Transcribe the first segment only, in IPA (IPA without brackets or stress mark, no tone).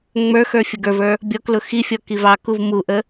ŋ͡m